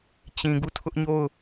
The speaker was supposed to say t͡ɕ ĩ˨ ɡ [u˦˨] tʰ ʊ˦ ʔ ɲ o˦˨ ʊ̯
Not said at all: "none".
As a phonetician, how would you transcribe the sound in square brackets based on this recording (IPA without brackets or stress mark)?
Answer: u˦˨